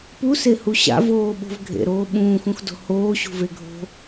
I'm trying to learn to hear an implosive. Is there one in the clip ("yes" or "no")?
yes